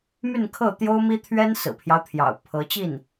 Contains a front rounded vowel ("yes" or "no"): yes